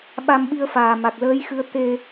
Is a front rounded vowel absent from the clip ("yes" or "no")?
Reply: yes